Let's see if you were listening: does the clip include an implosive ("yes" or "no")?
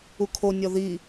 no